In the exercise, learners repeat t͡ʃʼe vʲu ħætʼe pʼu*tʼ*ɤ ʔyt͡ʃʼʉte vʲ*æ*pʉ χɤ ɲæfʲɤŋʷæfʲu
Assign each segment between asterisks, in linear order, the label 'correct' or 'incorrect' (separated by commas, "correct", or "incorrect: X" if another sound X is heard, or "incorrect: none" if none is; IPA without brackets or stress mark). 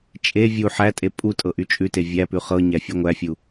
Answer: correct, correct